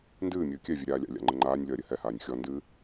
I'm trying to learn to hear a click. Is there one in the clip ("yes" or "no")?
yes